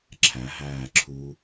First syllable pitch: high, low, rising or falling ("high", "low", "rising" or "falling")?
rising